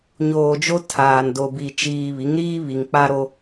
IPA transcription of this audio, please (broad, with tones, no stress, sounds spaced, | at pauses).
ɲ oː˨ d͡ʒ o˦ tʰ aː˨ n d o˨ b i˨ t͡ʃ iː˨ β i˨˦ ŋ ɾ iː˦ β i˨ ŋ k͡p a˦ ɾ o˦